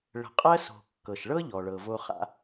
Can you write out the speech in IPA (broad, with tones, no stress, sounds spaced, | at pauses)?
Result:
ɭ ə̤˨ qʼ ɜ˥ s o̤˨ kː ɤ˩ ʃ ɭ ɤ˥ ʎ ɔ˩ ɭ ɤ˩ v o˦ χ a̰˦